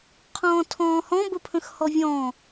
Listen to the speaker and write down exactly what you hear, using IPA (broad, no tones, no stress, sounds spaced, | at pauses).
qʰ ɔ̃ː tʰ ɔ̃ː h ɔ̃ b ə pʰ ə̃ x h ɔ vʲ ɔ̃ː